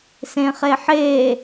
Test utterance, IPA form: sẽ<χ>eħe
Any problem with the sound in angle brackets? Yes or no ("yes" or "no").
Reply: no